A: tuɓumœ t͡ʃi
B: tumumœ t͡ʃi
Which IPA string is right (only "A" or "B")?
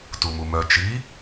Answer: B